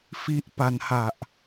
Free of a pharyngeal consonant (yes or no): yes